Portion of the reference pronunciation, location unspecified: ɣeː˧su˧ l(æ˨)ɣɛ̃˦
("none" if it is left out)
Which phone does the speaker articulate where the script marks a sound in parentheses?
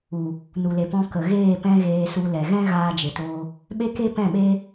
ɛ˨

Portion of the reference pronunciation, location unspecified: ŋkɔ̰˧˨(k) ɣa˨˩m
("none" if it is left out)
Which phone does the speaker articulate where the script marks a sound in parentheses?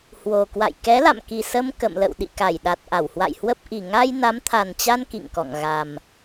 ŋ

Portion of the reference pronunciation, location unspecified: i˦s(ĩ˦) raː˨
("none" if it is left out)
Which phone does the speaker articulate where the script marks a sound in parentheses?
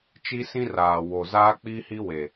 ĩ˦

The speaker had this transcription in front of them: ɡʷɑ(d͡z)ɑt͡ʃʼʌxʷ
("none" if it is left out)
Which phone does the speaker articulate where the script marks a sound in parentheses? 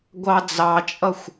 d͡z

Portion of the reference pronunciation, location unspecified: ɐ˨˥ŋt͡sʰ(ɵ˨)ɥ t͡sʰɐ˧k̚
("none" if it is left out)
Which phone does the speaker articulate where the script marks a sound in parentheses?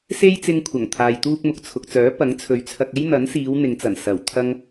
ɵ˨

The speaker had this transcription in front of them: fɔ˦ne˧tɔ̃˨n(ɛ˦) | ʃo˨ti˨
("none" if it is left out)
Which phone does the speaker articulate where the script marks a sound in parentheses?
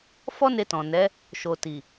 ɛ˨˦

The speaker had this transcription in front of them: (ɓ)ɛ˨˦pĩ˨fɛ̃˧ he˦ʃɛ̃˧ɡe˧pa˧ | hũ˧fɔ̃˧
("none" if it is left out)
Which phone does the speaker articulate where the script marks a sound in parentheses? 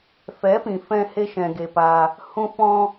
f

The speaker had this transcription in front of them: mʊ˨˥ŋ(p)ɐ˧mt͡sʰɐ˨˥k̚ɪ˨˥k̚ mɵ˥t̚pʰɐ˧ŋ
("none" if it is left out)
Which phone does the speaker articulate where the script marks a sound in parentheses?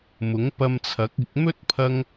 p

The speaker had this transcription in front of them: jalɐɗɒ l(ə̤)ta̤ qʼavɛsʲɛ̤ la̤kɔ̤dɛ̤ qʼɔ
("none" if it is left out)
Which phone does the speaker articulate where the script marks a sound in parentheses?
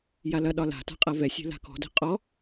a̤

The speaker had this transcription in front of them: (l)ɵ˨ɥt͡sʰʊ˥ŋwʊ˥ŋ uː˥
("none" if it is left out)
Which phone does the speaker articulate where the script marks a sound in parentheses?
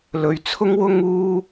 l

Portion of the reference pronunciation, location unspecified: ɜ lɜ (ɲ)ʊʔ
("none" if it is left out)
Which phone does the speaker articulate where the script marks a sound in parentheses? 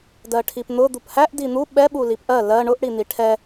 ɳ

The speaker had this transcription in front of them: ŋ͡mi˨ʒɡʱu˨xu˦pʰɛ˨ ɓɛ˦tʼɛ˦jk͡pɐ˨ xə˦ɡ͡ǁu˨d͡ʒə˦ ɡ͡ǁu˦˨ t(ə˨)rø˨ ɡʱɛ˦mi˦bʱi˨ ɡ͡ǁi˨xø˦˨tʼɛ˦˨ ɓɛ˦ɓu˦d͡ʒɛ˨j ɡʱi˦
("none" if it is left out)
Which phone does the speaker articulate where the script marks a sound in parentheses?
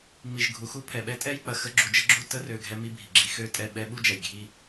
ə˦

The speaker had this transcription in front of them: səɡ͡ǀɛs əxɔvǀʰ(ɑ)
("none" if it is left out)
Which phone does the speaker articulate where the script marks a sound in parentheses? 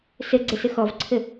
ə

